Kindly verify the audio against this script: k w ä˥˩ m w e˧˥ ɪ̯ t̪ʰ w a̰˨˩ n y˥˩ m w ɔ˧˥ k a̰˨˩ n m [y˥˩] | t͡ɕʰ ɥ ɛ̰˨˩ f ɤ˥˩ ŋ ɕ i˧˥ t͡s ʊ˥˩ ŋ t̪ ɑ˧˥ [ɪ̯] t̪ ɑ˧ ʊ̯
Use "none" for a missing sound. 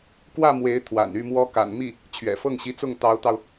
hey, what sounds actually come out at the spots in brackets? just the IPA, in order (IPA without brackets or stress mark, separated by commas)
i˥˩, ʊ̯